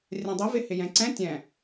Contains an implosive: no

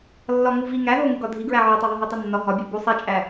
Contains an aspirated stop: no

